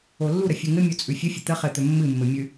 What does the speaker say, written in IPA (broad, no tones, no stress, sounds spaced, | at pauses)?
o lː u ɾ ə fʲ ɨ ŋ ɘ mʲ o t͡sʼ ʉ fʲ ə fʲ ə t̪ ə χ ɘ t̪ ɵ mː ɨ mː ɘ mʲ ʉ